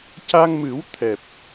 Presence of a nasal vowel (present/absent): absent